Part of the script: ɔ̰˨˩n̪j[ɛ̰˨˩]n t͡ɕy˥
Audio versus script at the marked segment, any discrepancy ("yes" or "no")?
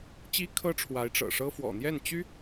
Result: yes